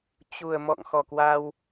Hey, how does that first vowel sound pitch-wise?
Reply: low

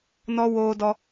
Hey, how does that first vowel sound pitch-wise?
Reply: high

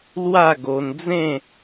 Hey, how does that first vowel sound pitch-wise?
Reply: falling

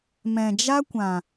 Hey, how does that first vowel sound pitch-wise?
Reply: low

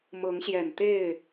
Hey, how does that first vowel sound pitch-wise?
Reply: rising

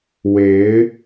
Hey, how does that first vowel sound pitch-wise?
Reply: rising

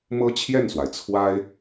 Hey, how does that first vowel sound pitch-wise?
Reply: high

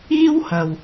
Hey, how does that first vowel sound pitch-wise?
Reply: high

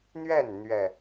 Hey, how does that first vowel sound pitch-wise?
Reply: falling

